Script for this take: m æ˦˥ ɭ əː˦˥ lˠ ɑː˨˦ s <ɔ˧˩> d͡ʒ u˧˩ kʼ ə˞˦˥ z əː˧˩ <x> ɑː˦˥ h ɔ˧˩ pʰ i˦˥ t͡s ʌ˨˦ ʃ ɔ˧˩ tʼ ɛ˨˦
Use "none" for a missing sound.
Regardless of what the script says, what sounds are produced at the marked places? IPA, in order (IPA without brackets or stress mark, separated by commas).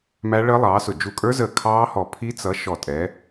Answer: ʊ˧˩, kʰ